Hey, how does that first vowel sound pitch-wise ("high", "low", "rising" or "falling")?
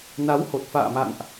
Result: rising